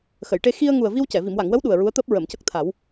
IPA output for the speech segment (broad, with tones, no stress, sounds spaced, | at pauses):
x ə˨˩˨ j ʈ e˧ x i˧ ə̯ ŋ u˨˩ ə̯ v i˧ w c ɛ˨˩˨ v i˨˩˨ m w a˨˩˨ ŋ w ə˧˥ w ɗ u˨˩ ə̯ ɹ u˧˥ ə̯ t̪ əː˦˥ p̚ ɹ ə˨˩˨ m c ə˦˥ k̚ t̪ʰ a˨˩˦ w